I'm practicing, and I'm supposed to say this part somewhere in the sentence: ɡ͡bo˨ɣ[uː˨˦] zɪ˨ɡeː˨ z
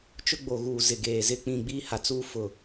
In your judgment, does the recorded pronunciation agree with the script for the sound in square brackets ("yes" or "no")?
no